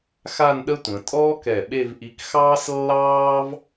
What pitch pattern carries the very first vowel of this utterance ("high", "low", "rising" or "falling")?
falling